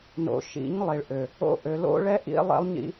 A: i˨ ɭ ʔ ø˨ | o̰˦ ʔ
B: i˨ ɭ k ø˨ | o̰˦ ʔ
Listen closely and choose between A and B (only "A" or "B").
A